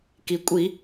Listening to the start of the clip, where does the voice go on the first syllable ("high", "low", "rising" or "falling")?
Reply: low